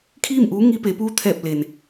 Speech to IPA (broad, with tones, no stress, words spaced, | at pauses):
kʰiː˥˨mʔuː˧˥ ŋi˧ pe˩˧puː˧˥ t̪ʰɛː˧˩p̚ le˩n